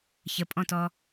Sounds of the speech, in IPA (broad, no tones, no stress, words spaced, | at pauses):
çəpʼɔ̃tɔ